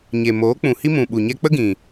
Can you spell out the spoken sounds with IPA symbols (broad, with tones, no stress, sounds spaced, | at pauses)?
ɲ e˨ m oː˨˦ k͡p ũ˨ h i˧ m ũ˨ ɓ u˨ ɲ ɛ˧ k͡p ə˦ ɡ ĩ˨